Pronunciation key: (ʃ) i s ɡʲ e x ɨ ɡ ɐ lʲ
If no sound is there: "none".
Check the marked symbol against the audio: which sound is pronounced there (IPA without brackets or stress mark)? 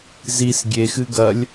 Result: z